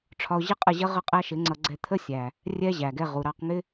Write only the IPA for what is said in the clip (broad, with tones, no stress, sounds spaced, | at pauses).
ʈ͡ʂʰ ɒ˧ ʊ̯ ʑ ɪ˦ qʼ ə˦˨ ʑ ə˦ ʁ ə˦ qʼ æ˦ ʃ ɪ˨˦ ŋ͡ǀ ʌ˧ ɡ͡ǀ ɛ˧ t̪ʰ ə˦ sʲ æ˨ | rʲ ɛ˦ ʑ æ˨ ɡ ɛ˧ ʁ u˨ ɾ ɑ˧ q ŋ ɪ˦